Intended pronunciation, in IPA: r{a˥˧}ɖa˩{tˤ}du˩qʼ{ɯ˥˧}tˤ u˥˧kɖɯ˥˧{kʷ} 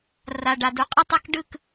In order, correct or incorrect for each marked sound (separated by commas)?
incorrect, incorrect, correct, incorrect